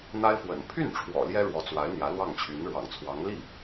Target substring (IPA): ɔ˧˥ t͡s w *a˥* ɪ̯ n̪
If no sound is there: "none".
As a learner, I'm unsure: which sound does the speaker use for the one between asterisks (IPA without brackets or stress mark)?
a˧˥